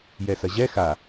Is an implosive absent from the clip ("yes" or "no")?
yes